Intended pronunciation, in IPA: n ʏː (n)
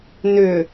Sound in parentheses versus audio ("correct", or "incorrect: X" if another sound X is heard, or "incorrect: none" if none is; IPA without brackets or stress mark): incorrect: none